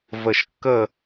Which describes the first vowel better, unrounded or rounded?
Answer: unrounded